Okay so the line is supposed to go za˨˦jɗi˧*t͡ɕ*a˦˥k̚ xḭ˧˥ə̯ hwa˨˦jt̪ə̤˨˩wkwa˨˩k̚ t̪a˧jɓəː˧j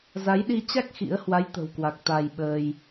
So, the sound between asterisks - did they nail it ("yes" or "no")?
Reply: yes